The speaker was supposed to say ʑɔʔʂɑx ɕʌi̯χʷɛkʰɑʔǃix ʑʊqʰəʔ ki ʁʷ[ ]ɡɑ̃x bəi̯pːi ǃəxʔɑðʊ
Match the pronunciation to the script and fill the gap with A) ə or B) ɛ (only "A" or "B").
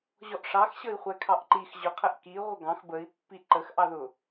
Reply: A